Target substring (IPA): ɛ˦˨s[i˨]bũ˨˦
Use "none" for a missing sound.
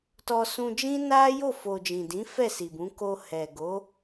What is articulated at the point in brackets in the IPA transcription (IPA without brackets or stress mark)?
i˨